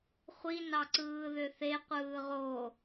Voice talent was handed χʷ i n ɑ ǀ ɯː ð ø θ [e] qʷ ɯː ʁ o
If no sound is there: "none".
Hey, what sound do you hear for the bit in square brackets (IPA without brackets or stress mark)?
e